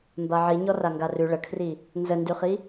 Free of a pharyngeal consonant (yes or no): no